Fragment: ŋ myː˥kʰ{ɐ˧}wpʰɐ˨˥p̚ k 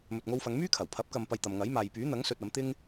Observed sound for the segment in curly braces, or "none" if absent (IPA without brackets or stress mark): ɐ˨˩